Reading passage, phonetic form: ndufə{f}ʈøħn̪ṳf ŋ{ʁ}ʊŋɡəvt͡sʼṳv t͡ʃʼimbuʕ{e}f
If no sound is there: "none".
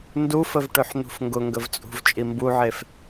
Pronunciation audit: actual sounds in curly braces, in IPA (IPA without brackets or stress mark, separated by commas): v, ɡ, e